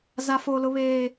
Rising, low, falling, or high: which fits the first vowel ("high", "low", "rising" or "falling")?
high